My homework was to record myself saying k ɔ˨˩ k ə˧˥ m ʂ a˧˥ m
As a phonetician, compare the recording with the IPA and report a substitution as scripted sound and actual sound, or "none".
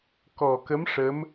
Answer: a˧˥ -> ə˧˥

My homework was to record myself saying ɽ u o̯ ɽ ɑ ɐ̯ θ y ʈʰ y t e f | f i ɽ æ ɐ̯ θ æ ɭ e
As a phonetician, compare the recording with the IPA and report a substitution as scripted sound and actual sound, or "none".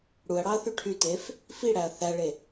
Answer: o̯ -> ɐ̯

